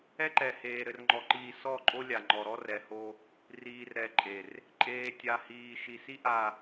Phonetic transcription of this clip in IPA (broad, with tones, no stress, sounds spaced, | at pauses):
ɛ˦ ǃ ɛ˨ h eː˨ ɾ ɘ˨ r ŋ͡ǃ ɔ˨ ǃ iː˨ s ɔ˦˨ ǃʼ o˦ lʲ a˨ ŋ͡ǃ ɔ˨ ɾ ɔ˦ r ɛ˨ h o˦ | r iː˨ r ɾ ɛ˨ ǃʼ e˨ r | ǃʼ eː˨ tʲ a˨ h iː˨ ʃ i˨ s i˦ ʔ a˨